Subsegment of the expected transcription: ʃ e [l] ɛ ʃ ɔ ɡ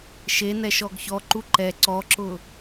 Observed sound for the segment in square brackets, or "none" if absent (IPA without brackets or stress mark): n